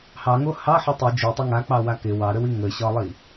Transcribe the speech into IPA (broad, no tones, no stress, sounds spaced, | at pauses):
h ɑ ŋ o h ɑ ħ o tˤ i d͡ʒ u tˤ ə ŋ a k͡p ɑ w a k ɪ w ɑ ɾ ə w i ŋ ə ɕ ɒ lˠ i